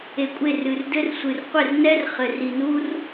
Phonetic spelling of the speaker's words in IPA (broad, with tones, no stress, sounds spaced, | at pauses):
e˨ kʷʼ e˦˨ r ɨ˨ r d ɘ˦ r sʷ ɨ˨ r qʷ ɘ˦˨ r n ɛ˦ r χ ɘ˨ r i˨ n u˦ r